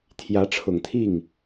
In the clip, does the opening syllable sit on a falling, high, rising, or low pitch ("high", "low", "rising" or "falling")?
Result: rising